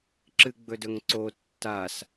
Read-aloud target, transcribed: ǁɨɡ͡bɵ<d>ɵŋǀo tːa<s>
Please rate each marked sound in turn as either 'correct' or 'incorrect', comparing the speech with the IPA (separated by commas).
correct, correct